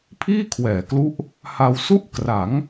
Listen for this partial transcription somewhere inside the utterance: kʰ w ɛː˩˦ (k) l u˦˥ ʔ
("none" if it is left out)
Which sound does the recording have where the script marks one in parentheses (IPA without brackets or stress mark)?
k